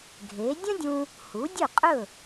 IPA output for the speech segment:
ɡʱ e˩˥ dʲ ə̃˥ dʲ ũ˧ | h u˩˥ dʲ ɵ˥˩ qʼ ɵ˥˩

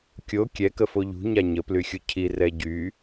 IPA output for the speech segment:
kʲ o kʲ ɛ k ə f o ʎ ṳ ɲ a ɲ ə p l y xʲ u cʰ i r ɛ ɟ y

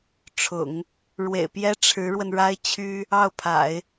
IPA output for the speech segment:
ʈ͡ʂʰ ʊ̰˨˩˦ ŋ | ɻ w ḛ˨˩ ɪ̯ p j ɛ˥ ʈ͡ʂʰ ɻ̩˧˥ ɻ w ə˧ n ɻ a˥ ɪ̯ t͡ɕʰ y˥ | ɑ˥˩ ʊ̯ pʰ a̰˨˩˦ ɪ̯

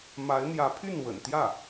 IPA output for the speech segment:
m a˧˥ ɪ̯ n̪ j ä˧˥ pʰ y˥˩ n w ə̰˨˩ n t̪ j ä˥˩

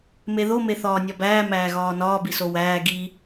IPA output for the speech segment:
m e ð o m e θ ɒː nʲ ɒ b æː m æː ɣ ɒː n ɒː b i s o w æː ɡ i

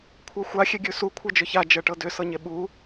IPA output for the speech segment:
kʷʰ ɤ xʷ a xʲ e ɡʲ ʉ s u kʷʰ ɤ d͡ʒ ʏ ç a d͡ʒ ɤ ʈ ɤ d ʏ s ɤ ɲ e ɓ u

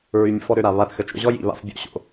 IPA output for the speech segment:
ɹ y˧ mʲ ə̰˧ f ɔ˦ ɾ ø˧ ɾ a˨ β a˦˨ θ x ə˨˦ t͡ʃ o̰˦ ʑ ɔ˦ j ḭ˨ β a̰˦ f bʲ o̰˧ ɕ o̰˧

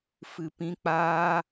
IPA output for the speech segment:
f ɨ˨ p ĩ˧ k͡p aː˦

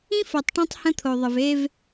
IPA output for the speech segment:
ĩ˦ f o˨ tˤ ʈ õ˦ tˤ h ə̃˦ t̪ʰ o˨ ðˤ ə˨ v e˦ v

